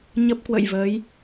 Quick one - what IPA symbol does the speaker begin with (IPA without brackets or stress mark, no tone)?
ɲ